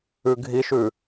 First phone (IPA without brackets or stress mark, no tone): ʉ